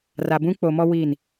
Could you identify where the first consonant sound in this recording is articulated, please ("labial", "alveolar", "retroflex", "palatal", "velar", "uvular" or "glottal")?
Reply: alveolar